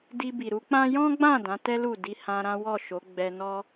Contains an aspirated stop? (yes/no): no